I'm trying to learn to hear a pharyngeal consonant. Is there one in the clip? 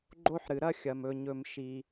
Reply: yes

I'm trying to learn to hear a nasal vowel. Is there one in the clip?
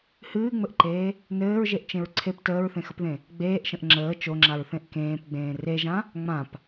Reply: yes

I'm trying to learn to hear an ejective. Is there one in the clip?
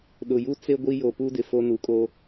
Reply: yes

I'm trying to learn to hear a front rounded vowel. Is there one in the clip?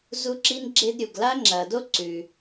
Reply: no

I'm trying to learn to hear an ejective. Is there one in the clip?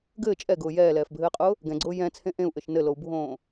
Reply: yes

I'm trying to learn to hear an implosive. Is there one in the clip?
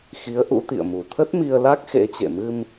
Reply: no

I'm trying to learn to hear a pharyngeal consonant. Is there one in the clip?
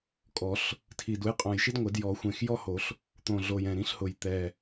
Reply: no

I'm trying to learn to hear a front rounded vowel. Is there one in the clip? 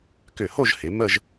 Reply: yes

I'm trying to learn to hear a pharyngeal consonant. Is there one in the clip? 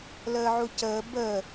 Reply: yes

